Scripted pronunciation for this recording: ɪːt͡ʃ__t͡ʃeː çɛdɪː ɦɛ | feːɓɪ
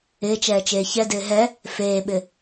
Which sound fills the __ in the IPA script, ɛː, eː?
ɛː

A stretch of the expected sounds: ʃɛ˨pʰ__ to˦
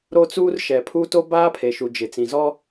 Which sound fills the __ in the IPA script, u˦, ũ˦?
u˦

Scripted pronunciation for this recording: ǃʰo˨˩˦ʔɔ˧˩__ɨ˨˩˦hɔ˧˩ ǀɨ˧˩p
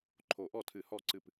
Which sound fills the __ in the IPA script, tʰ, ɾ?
tʰ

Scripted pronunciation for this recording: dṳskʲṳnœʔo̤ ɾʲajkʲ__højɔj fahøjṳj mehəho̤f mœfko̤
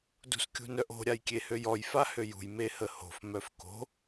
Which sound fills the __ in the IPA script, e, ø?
e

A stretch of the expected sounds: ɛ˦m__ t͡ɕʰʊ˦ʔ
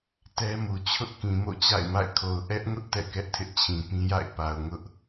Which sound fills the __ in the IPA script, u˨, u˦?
u˨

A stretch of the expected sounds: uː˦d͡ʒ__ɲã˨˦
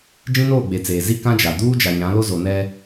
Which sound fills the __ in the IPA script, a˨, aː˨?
a˨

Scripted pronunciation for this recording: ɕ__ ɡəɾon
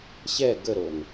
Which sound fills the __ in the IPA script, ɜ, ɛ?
ɛ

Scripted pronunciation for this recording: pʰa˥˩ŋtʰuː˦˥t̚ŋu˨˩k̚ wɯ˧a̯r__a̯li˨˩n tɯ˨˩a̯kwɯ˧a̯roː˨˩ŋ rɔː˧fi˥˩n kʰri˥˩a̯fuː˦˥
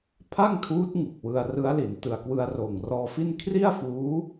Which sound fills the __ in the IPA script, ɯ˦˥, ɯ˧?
ɯ˦˥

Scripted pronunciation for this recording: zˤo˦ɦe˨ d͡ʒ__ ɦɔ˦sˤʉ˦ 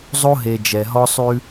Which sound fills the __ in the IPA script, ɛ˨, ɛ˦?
ɛ˨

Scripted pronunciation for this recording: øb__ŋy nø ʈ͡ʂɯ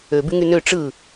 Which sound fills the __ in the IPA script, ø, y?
y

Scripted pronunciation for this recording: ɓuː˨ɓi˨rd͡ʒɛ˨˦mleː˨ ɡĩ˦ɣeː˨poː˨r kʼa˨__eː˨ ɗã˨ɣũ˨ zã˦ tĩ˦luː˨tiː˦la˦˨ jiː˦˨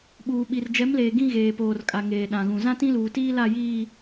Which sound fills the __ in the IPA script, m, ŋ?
ŋ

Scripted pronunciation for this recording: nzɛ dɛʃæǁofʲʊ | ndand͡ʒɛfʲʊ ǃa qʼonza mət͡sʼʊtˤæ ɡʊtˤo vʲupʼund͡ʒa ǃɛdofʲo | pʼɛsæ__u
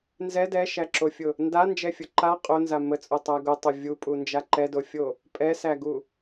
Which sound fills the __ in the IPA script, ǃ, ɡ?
ɡ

